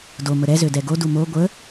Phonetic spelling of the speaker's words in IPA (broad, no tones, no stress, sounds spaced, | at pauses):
d o m ə ɾ ɛ z ø d ɛ ɡ o d u m o ɡʷ ə